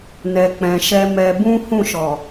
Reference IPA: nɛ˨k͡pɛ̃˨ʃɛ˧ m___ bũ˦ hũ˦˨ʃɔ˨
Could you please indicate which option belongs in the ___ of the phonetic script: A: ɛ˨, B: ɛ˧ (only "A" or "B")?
B